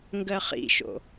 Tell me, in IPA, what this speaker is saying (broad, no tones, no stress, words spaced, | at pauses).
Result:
ŋɡɜχḭʃo̰